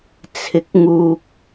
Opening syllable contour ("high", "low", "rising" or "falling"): rising